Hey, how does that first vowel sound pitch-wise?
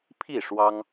falling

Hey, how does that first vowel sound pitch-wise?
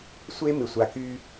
high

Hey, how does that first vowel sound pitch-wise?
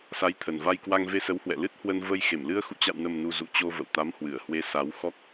rising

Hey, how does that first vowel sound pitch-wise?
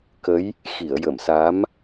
rising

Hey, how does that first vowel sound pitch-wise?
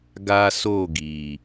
high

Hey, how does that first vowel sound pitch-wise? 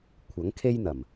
rising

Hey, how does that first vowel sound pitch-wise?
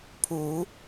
low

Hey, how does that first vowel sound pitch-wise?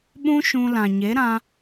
high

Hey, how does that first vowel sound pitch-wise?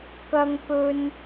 high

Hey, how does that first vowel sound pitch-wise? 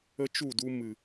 high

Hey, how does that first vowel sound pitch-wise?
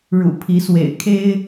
low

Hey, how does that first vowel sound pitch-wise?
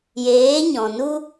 rising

